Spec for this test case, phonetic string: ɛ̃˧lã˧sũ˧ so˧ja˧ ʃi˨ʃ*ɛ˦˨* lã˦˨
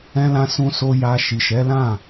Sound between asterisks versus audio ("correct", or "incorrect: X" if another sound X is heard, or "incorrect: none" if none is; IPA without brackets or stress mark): incorrect: ɛ˨˦